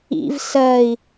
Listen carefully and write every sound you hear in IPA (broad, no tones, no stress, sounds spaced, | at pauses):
ḭ v s ɜ i̯